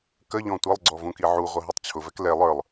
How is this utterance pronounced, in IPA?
k ə ʎ ɔ̃ tʷ ʌ lˠ ɡ͡ǀ ɔ v ũ k i ʕ u ʁʷ ʌ ɦ i tˤ t͡ɕʰ ʊ v ɛ k l ɛ lˠ ə˞ lˠ

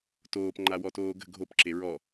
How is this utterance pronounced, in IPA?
t oː p ŋ͡ǃ a w ɔ t oː ɡ ə̤ ɡʱ o p ǁ e ɹ ɔ

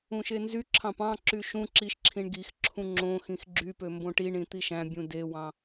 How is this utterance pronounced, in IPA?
ũ ʃ e n z y ǁʰ ɑ̃ p ɑ̃ ǁ y ʃ ũ ǁ i ʃ ǁʰ ĩ ɳ ɡ i x ǁʰ ũ ŋ͡ǁ õ x ĩ x ɡ͡ǁ y p ø m b õ ʈ i ɳ ĩ t̪ i ʃ æ̃ bʲ ũ d e w ɑ̃

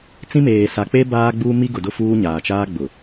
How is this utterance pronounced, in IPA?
t͡s ĩ˦ m eː˨ s a˨ k͡p e˦ b aː˦ ɡ͡b uː˦ m i˦ ɡ ʊ˨ d ʊ˦ f uː˦ ɲ aː˨ t͡ʃ aː˦ ɡ͡b ʊ˨

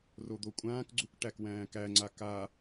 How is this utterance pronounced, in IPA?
r o d̪ o kʷʼ ãː k ɡ͡ǀ u k ʈ æ k w æ̃ː k æ ŋ͡ǀ a k a

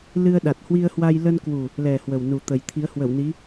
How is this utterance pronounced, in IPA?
l ɨ˧ ə̯ ɗ a˨˩ t̚ h w i˧ ə̯ h w a˧ j l ə˧ n k w u˨˩ | l ɛ˨˩ h w ə˨˩ w n u˨˩ t̪ ə˨˩ j t̪ʰ i˨˦ ə̯ h w ə˧˩ w n i˨˦

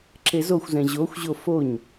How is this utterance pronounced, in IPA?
ǁ e z o xʷ z ɛ̃ ʑ o xʷ ʑ o f o ɲ

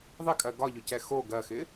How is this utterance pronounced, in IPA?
ðˤ ɪ kʼ ɜ ɡ ɒ ʎ ʊ c ɛ x o ɡ ɜ x ɪ

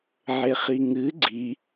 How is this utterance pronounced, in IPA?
ʕ e χ i ŋ ɨ ɡ͡ǀ i

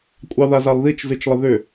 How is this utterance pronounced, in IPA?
kʷʼ ɑ ð a z a lˠ ð i t͡ʃ z ɨ t͡ʃ lˠ ə ð ʏ

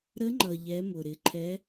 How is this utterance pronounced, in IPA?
ɾ ə˧˥ ŋ͡ǃ ʌ˩ ʎ ɛ˩˧ m ʊ˩ ɾ ɪ˩˧ ǃʰ ɛ˧˥

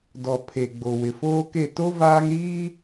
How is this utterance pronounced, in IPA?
d ɔ˨ pʰ e˨ ɡ͡b o˨ w ɪ˨ f oː˦ k e˦˨ t o˦ v aː˦ ŋ ɾ iː˦

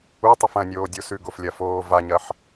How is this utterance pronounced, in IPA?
u tˤ ɨ f ɐ̃ nʲ oː dʲ o s ʉ ɡ o f lʲ ɐ f oː v a ɲ ɐ ħ

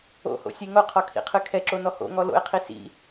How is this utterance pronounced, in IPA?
o̰ h o̰ sʲ e ŋ o qʰ ɔ kʰ ḭ qʰ ɨ kʰ ɛ ǁ o n ɔ h o̰ ŋ ɔ l o̰ e̯ qʰ i s ḭ

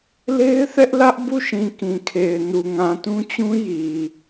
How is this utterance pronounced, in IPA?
l e˦ ɪ̯ θ ɛ˦ ʔ l ä˦ ʔ b u˦˨ ʃ ĩ˨ k ĩ˨ kʰ e˨ ɪ̯ n u˨ ŋ ã˨ t ũ˦ t͡ɕ ũ˦ j i˨

